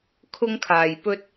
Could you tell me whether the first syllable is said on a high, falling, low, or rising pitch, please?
high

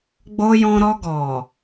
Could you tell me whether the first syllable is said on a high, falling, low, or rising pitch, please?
high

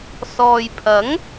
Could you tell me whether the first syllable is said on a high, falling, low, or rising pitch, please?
low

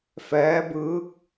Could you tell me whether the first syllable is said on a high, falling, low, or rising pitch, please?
rising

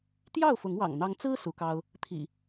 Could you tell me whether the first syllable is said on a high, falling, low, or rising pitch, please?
falling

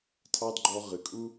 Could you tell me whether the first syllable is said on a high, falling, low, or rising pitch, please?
high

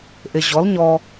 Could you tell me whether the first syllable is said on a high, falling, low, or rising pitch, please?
low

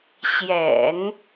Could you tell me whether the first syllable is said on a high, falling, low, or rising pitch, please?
low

